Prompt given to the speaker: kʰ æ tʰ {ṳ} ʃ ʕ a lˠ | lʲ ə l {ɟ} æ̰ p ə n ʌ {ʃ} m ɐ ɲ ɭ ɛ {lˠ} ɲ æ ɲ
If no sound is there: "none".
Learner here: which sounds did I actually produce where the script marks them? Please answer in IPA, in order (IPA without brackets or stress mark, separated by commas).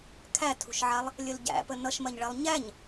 ṳ, ɟ, ʃ, lˠ